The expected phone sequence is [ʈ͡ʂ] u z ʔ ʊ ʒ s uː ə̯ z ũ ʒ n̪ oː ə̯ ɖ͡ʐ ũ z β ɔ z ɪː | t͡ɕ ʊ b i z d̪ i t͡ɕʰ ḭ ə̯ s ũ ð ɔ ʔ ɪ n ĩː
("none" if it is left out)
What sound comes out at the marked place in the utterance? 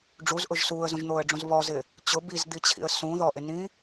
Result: ɖ͡ʐ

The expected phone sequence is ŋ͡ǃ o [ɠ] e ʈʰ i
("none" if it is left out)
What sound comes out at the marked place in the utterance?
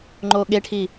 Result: ɠ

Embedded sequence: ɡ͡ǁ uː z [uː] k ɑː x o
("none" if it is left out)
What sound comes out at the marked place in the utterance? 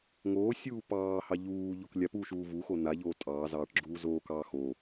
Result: oː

